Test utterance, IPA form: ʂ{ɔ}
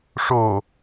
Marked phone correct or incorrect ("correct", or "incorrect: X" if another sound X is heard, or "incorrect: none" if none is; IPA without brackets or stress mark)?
incorrect: o